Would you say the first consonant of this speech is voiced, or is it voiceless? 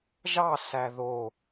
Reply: voiced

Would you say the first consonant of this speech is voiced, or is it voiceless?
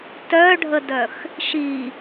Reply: voiceless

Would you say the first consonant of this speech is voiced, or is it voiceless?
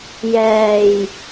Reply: voiced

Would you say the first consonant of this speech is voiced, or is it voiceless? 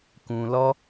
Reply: voiceless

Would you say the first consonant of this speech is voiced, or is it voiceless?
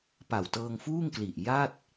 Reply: voiceless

